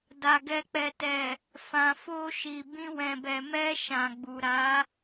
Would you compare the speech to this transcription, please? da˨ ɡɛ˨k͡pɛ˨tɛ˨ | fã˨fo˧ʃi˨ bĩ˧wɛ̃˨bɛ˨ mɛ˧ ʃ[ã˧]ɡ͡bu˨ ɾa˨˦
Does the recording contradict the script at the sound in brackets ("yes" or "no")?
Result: yes